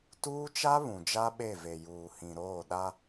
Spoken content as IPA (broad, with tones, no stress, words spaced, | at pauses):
tuː˦t͡ʃa˦ βũ˨d͡ʒa˦ɓe˦˨ve˨ juː˨hĩ˨ ɾoː˦˨ɗa˦